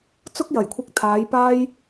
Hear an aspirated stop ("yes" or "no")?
yes